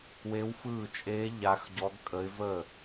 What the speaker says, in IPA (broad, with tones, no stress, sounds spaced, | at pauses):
w e˦˥ w f ɯː˥˧ t͡ʃʼ eː˦˥ ʎ a˦˥ x ɟ ɔ˦˥ ɡ kʼ ə˦˥ ɪ̯ v əː˥˧